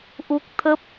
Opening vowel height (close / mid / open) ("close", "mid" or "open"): close